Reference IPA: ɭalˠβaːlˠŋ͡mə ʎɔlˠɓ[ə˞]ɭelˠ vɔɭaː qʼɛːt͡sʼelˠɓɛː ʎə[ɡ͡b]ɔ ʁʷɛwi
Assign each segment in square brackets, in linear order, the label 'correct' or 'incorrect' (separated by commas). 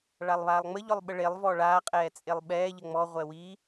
incorrect, incorrect